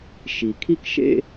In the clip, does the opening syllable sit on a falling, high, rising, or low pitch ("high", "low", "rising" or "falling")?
low